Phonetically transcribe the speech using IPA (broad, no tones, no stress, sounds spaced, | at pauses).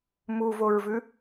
m u v o ɹ v ʉ